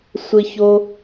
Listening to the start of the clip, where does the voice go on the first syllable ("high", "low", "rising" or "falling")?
high